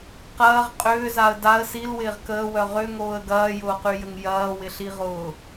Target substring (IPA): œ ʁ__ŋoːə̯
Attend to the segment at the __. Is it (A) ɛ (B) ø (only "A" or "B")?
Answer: B